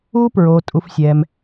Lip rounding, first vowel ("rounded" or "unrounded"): rounded